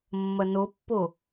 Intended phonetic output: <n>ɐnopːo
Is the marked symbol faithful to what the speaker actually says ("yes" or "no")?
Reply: no